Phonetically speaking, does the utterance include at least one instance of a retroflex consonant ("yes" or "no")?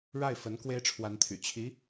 yes